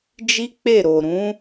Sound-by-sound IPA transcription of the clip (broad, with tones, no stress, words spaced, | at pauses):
d͡ʒi˦k͡pe˦˨ ɾo˨ɾũ˨˦